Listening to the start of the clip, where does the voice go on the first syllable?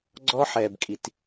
high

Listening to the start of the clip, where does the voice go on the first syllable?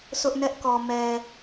high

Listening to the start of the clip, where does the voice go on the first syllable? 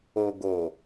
low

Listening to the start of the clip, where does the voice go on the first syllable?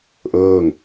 falling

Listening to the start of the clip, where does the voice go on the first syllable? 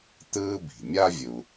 high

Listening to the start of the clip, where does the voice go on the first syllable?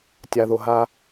low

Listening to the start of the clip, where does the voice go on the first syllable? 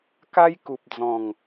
high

